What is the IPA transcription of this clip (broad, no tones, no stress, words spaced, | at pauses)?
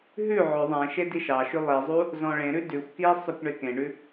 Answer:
ɦʉ ʕʏ ðˤẽ ʃediʃɑʃʉ lˠizˤu | zɔ̃ɭẽɾʉ dʉxʷ ki sˤʉkʷɳekẽɳʉ